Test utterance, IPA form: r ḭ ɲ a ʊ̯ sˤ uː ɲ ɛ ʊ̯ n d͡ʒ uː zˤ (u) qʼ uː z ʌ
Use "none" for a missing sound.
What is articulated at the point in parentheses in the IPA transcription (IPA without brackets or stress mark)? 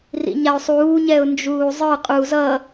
ɯ